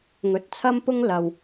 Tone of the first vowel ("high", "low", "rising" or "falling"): rising